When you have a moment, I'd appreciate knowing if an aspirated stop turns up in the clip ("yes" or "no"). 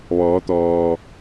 no